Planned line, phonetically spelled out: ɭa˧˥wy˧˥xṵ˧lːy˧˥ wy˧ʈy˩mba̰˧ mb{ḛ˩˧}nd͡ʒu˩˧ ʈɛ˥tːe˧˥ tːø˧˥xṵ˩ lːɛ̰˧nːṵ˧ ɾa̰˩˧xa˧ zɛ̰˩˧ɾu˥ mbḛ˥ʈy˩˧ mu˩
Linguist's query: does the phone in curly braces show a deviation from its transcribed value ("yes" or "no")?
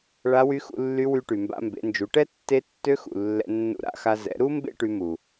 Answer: no